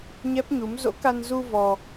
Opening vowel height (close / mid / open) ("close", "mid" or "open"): mid